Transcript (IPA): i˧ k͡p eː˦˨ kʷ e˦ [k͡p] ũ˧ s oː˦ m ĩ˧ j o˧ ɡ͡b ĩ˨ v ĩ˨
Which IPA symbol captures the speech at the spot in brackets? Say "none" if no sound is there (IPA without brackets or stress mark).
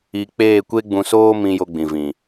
ɡ͡b